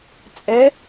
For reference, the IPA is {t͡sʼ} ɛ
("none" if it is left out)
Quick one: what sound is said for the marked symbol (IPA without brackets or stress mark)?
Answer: t͡sʼ